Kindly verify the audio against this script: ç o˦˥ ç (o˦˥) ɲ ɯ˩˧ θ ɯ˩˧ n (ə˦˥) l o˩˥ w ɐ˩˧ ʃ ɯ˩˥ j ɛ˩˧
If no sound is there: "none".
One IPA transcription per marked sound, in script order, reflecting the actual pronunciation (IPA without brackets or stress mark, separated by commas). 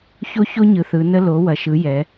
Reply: o˦˥, ə˦˥